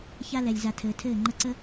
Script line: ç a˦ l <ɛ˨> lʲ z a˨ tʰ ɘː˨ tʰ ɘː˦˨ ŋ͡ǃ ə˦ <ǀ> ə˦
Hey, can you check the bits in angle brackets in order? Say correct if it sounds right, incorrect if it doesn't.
correct, correct

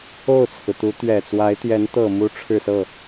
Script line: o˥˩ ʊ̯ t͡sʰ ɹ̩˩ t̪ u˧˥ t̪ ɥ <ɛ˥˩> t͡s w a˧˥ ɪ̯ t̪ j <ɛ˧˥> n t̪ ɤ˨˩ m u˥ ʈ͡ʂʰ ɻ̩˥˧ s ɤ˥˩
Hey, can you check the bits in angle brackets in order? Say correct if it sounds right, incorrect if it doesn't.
incorrect: ɛ˨˩, correct

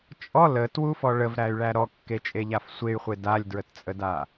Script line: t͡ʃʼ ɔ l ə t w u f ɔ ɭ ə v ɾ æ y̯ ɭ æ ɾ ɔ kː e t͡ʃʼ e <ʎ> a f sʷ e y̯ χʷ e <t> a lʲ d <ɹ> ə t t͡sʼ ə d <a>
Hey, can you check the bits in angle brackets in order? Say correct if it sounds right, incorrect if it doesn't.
correct, incorrect: d, correct, correct

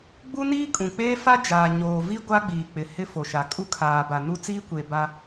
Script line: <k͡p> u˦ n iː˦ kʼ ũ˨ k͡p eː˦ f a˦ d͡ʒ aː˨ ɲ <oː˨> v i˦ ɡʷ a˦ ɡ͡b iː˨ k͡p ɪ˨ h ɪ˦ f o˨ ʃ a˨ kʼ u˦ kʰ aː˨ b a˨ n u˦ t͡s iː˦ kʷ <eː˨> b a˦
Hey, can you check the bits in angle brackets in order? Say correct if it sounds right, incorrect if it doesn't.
incorrect: ɡ͡b, correct, correct

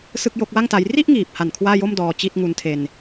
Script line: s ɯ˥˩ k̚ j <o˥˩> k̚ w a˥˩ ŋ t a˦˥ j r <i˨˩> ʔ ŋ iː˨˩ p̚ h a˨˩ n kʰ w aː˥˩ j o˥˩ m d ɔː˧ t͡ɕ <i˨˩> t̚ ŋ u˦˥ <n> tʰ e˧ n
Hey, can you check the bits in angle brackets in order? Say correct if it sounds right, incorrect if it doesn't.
correct, incorrect: i˥˩, incorrect: i˥˩, correct

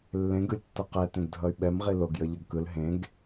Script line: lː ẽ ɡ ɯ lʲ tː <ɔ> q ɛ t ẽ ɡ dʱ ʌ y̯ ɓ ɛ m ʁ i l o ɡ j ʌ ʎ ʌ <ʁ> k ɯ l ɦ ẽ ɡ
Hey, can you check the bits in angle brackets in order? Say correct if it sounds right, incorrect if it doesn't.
incorrect: ʌ, incorrect: ɡ

